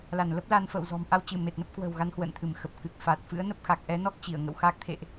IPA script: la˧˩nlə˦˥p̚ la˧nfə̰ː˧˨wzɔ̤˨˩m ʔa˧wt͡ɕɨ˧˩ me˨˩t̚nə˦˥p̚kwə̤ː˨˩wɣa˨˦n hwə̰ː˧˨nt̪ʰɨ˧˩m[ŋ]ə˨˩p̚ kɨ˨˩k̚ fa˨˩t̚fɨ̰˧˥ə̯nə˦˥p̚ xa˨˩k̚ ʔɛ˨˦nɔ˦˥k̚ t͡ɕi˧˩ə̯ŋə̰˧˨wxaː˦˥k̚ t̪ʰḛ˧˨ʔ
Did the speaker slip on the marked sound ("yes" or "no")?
yes